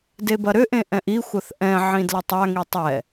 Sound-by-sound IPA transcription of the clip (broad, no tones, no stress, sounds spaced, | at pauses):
d e b ɐ ɾ ʏ ʔ ẽ ʔ ɛ̃ ʔ i xʷ ɐ θ ʔ ɛ̃ ʕ ĩ d l ə tˤ a ŋ i tˤ ɛ